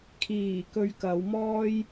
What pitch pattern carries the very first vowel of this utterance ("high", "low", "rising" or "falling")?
low